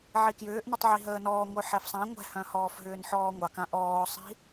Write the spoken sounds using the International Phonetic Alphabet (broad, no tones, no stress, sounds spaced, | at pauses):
ʕ i k j ʏː ʔ n ə tˤ ʕ i ɦ əː n ɔː ŋʷ œ ħ ɛ f sˤ ã ŋʷ ɛ̤ h œ̃ h ɔː f ɦ ʏː n ħ ɔː ŋʷ ɑ k ã ʔ ɔː sˤ i̤